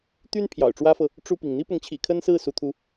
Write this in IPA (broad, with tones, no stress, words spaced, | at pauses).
t̪y˥n pʰjɑ̰˨˩ʊ̯ʈ͡ʂwä˥fɤ˨ | ʈ͡ʂu˥˩pi˩ŋ n̪i˥pʊ˧˥ŋt͡ɕʰḭ˨˩ kʰə˥nsɹ̩˥˩ su˥t̪ʰu˥